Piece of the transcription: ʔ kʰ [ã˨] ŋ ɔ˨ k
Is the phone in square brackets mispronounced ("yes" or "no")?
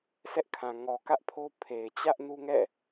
no